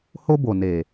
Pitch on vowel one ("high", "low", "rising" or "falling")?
high